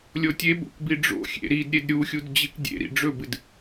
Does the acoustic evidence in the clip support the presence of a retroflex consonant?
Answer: yes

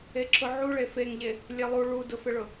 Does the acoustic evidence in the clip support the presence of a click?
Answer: yes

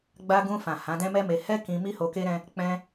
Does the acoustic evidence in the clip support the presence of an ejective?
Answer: no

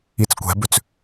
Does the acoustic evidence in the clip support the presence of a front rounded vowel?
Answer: yes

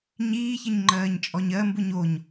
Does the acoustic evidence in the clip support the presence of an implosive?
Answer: no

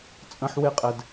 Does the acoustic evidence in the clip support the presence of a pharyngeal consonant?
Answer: yes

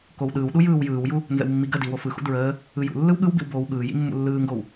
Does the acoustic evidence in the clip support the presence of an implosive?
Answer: yes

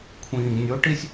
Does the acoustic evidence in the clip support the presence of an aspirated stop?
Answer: yes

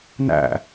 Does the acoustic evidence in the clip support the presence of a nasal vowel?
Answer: no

